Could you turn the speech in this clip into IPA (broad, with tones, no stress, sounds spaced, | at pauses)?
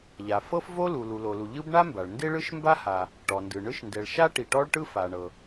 ʎ a˩ f ɤ˥ f v o˥ l u˩ l u˩ l o˩ l u˩ ʎ ɯ˥ b ɳ a˥ m b a˩ ɭ n d e˥ ɭ ɯ˥ ʃ m b a˥ h a˩ | ʈ ɔ˩ n d ɯ˩ ɳ ɯ˥ ʃ n d ɛ˩ ɭ ʃ a˥ ʈ i˩ ʈ ɔ˥ ɭ ʈ ɯ˥ f a˩ ɳ ɤ˩